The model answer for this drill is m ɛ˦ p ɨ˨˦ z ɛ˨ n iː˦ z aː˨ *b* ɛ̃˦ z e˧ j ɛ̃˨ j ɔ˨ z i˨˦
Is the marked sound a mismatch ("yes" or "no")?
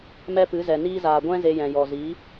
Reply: yes